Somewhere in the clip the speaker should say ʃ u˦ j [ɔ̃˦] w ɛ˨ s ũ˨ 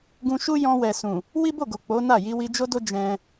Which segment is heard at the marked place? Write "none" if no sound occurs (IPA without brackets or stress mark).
ɔ̃˧